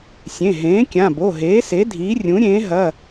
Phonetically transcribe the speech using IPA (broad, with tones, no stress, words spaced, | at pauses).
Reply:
sʲẽ˩˧˩ɦẽː˩˥kʲã˩˧˩ bo˩˧˩ɦeː˩˥se˩˥ dʱiː˩˥rʲũ˩˥ɾʲẽː˩˥ ɦɐ˩˧˩